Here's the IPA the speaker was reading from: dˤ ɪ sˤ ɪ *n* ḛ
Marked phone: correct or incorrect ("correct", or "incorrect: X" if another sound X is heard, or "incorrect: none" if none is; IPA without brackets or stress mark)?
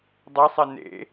correct